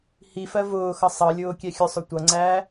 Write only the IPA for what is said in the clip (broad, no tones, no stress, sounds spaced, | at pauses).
h i f ɜ v ʊː x ʌ sˤ ʌ lʲ ʊː kʲ ɛ xʲ ʊ sˤ ʊ tʷ ʌ ŋ͡ǀ æː